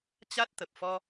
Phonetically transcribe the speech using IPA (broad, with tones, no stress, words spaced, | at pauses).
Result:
t͡ɕa˦˥t̚t̪ə˨˩p̚ fɔ˧